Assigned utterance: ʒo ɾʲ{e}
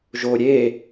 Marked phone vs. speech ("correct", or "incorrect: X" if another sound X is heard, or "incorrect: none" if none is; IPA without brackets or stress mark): correct